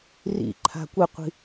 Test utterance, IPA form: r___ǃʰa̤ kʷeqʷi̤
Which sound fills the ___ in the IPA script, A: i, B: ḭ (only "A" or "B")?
B